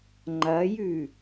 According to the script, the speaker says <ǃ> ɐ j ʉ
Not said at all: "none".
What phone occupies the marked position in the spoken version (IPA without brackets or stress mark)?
ŋ͡ǃ